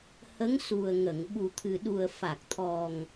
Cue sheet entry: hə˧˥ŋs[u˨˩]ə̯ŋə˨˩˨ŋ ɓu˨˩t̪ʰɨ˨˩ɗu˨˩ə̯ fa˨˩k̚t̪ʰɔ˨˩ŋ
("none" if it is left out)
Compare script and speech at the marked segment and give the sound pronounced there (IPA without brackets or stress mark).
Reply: u˨˩